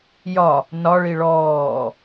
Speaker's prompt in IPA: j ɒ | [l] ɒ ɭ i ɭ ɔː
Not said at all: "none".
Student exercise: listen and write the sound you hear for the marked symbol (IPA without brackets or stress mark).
n